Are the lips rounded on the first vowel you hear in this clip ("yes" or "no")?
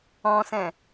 yes